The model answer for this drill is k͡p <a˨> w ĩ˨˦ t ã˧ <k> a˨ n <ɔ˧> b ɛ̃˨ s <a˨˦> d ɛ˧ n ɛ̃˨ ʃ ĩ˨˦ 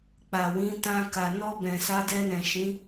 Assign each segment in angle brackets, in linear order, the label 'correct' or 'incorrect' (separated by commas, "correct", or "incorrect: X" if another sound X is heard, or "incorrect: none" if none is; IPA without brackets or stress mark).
correct, correct, correct, correct